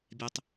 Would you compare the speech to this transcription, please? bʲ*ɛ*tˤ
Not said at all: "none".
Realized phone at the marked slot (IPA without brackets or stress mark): ɛ